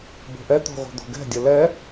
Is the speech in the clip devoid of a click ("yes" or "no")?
yes